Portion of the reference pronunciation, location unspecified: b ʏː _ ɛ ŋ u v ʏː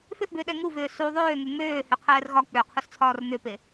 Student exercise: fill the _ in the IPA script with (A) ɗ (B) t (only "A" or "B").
A